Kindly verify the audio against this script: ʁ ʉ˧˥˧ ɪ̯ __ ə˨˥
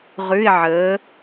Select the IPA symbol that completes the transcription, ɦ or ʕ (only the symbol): ʕ